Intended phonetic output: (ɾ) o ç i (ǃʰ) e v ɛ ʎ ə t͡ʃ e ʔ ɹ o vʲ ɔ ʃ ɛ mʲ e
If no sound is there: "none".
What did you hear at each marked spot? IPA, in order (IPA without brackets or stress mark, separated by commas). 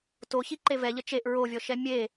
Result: t, ǃ